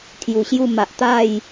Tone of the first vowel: low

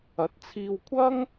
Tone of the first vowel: rising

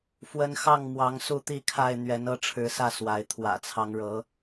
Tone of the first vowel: high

